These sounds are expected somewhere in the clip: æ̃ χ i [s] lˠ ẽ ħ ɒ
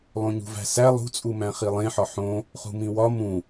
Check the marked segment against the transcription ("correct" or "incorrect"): incorrect